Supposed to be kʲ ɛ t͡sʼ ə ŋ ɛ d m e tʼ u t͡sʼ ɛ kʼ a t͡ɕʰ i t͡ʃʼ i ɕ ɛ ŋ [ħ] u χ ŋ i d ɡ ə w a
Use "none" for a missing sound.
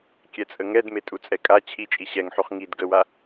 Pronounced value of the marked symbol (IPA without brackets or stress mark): ħ